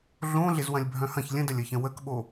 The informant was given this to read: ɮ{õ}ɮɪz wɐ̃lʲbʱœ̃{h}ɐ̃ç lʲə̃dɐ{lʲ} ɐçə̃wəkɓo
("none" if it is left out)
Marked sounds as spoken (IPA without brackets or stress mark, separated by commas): õ, h, lʲ